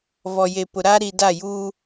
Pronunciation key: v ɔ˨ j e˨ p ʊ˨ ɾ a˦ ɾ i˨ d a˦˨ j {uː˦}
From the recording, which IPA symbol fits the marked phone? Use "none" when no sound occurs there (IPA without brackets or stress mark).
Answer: uː˦